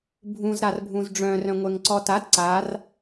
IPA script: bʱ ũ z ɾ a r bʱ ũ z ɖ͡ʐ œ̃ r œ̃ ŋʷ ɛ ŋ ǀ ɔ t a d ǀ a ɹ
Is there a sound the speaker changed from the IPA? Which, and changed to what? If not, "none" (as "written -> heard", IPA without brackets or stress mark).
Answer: ɹ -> r